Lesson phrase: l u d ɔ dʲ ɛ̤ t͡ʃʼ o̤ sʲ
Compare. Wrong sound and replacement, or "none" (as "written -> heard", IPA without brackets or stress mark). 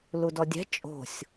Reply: none